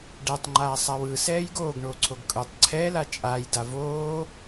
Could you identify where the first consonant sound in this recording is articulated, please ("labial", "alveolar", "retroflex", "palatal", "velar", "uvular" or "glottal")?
retroflex